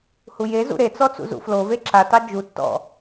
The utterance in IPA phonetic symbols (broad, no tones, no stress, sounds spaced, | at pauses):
h u j e z ṵ ɾ e t͡s ɔ t͡s ṵ z ṵ f l o v e ǁ a t ɑ d͡ʒ u tː ɔ̰